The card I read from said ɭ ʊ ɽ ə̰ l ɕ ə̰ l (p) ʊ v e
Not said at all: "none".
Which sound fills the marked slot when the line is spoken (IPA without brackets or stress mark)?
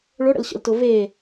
t